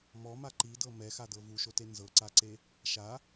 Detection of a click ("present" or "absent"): present